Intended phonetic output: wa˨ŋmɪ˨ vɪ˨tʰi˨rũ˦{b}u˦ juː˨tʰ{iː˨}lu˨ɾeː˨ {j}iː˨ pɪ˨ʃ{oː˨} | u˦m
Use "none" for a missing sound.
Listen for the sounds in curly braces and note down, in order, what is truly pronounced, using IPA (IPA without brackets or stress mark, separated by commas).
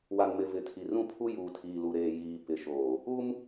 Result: pʰ, iː˨, j, oː˨